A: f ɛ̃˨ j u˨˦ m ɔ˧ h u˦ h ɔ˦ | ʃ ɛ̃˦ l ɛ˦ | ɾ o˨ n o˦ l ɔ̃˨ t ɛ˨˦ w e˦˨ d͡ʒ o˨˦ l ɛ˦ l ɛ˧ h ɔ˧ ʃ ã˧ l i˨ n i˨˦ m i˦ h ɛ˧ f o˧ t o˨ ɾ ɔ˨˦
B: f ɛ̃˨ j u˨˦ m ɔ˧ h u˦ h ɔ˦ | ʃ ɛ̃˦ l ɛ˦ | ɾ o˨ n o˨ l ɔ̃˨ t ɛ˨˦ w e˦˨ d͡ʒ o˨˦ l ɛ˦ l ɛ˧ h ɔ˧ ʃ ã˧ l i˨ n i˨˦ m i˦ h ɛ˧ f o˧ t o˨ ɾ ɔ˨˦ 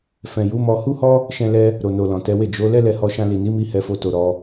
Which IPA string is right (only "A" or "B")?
B